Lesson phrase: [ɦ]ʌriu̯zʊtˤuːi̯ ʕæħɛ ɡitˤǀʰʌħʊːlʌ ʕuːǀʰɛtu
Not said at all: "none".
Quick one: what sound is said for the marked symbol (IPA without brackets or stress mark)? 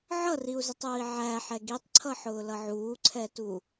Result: ʕ